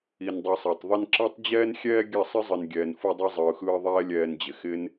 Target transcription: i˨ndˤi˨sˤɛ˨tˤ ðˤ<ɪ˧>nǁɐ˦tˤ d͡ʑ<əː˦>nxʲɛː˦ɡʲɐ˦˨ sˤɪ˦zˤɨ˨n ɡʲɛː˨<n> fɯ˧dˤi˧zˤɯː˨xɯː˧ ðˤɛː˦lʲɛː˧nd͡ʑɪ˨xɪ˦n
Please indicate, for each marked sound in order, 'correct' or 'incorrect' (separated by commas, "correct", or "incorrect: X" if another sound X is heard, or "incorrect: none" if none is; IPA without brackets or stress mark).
correct, incorrect: ɛː˦, correct